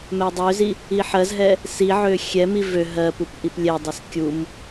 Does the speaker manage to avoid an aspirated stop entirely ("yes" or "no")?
yes